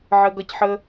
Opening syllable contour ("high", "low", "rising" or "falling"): high